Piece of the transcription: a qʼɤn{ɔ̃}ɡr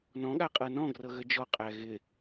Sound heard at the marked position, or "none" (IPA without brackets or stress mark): ɔ̃